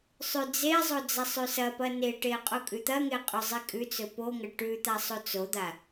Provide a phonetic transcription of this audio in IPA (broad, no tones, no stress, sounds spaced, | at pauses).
sˤ ʉ d͡z e zˤ o d͡z ɐ sˤ ʉ s ɐ p ɐ n e ʈ e qʼ u kʼ ʉ t̪ ɐ ŋ e qʼ ɵ zˤ i kʼ ʉ t͡s ɵ p o ŋ ɐ ʈ ʉ t̪ a sˤ o t͡s o d̪ a